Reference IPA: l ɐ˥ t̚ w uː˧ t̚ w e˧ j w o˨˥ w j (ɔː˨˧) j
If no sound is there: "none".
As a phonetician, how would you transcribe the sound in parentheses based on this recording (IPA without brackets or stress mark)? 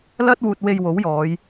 ɔː˨˧